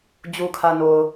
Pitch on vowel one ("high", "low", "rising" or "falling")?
low